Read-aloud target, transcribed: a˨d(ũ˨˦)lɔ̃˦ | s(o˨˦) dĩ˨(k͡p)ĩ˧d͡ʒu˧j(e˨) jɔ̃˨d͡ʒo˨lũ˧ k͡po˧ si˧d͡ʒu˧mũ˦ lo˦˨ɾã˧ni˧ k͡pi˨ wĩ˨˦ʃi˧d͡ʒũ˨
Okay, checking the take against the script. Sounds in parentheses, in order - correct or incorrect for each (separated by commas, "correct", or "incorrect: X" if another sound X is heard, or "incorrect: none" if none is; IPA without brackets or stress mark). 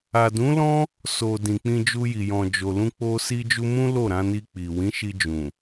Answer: correct, incorrect: o˨, correct, incorrect: i˨